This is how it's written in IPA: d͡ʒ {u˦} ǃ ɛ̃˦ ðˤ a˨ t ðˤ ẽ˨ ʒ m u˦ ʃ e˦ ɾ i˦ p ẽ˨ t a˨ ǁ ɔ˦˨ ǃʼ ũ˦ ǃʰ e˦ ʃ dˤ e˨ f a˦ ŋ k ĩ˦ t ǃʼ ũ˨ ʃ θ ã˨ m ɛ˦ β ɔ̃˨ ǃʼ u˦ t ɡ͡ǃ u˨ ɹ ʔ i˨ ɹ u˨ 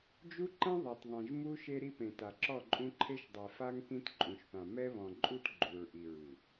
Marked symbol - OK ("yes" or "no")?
yes